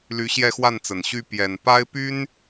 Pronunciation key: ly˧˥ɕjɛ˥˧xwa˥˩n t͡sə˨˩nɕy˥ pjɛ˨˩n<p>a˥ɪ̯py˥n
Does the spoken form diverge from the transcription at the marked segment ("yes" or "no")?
no